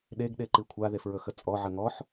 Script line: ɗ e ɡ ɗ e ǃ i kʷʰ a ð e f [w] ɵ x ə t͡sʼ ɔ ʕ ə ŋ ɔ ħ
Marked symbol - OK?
no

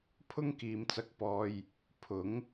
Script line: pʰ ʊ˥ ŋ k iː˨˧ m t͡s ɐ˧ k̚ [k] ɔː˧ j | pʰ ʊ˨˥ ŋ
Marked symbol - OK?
no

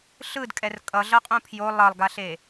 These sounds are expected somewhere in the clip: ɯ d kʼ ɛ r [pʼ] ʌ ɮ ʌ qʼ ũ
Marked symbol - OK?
no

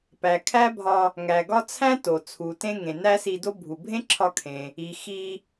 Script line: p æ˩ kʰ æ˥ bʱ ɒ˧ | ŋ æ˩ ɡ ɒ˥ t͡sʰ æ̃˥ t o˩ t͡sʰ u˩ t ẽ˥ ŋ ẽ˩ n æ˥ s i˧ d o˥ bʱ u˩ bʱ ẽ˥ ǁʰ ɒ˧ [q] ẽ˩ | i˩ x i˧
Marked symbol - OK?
no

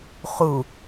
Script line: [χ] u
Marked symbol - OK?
yes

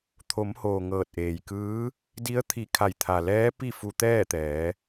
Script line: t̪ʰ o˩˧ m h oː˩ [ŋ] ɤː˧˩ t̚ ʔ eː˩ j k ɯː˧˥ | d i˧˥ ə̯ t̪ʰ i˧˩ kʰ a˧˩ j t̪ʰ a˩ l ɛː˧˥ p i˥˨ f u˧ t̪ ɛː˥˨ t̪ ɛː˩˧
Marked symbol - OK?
yes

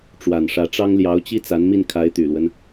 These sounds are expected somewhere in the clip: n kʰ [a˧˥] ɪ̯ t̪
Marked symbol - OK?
yes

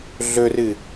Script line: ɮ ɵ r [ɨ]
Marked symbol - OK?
yes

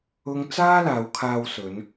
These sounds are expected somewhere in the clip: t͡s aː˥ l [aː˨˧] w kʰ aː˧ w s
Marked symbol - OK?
yes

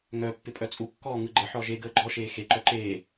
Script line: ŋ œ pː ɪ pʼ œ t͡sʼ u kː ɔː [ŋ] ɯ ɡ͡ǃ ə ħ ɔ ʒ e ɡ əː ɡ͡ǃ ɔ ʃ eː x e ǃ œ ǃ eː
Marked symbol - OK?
yes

